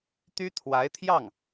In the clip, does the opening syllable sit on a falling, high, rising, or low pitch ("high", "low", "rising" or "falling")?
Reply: high